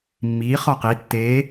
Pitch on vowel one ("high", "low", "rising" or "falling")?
rising